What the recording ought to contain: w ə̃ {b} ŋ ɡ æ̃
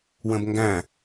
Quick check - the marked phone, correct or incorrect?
correct